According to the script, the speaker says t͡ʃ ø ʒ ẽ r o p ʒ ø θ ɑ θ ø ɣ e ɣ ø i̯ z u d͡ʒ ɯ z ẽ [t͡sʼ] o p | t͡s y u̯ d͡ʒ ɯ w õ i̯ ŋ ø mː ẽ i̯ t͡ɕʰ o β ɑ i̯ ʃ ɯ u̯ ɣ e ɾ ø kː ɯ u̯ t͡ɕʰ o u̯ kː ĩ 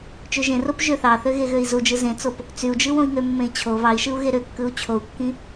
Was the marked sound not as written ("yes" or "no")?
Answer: yes